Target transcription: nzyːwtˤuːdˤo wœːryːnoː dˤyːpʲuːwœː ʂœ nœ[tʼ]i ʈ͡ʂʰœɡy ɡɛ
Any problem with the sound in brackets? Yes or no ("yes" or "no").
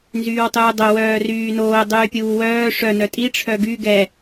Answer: no